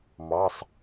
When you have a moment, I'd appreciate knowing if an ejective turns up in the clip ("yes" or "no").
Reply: no